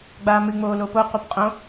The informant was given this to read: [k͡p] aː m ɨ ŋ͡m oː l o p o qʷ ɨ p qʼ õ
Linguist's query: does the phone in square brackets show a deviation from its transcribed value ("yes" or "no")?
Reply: yes